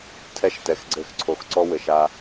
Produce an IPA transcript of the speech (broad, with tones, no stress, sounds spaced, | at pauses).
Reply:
tʰ ɛ˦ ʃ t ɛ˨ x ɡ͡ǀ ɘ˦˨ x ǀʰ o˨ x ǀ ɔ˦ w ɘ˨ ʃ a˦